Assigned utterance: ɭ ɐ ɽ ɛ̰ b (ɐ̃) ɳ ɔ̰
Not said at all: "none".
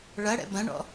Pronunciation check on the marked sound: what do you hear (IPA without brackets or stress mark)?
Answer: ɐ̃